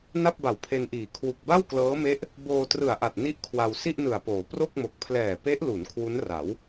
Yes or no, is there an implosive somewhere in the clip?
no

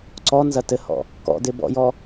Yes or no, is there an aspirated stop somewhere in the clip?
no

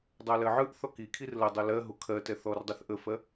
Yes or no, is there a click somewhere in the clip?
no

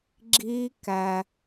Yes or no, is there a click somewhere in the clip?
yes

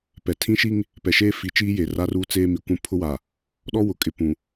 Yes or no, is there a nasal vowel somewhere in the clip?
yes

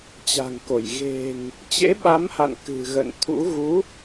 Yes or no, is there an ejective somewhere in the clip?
no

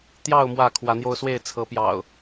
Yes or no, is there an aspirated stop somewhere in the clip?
yes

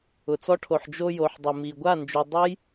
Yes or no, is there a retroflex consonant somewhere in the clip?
yes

